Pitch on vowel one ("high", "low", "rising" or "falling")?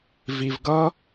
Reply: low